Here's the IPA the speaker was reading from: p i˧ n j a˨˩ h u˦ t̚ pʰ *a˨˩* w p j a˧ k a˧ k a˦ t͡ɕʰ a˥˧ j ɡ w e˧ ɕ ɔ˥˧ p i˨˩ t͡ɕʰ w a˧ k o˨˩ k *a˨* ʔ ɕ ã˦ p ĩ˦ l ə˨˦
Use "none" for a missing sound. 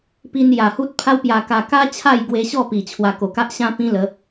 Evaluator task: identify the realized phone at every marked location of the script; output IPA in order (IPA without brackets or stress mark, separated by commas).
a˦, a˦